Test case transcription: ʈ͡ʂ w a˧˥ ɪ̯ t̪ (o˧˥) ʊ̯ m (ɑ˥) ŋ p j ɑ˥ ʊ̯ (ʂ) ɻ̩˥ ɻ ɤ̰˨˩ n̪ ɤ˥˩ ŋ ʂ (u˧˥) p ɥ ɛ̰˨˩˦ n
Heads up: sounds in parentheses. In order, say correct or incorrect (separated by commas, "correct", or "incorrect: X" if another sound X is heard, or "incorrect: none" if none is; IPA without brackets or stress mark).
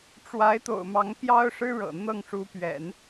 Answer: incorrect: o̰˨˩, incorrect: ɑ˧˥, correct, correct